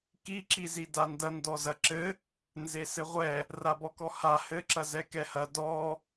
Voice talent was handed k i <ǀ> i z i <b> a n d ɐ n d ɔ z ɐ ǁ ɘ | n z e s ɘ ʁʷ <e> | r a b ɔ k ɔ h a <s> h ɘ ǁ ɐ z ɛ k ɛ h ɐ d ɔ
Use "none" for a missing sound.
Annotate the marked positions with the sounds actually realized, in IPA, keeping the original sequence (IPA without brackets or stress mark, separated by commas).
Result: ǁ, d, ɛ, none